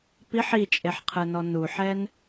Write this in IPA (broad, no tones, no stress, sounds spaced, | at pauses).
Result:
p i ħ i t͡ʃʼ e ħ qʰ ɯ n ɔ n u ħ ɛ n